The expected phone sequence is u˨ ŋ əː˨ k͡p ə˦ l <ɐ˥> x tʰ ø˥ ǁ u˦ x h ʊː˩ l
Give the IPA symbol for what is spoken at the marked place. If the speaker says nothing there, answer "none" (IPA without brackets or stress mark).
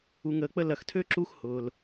ɐ˨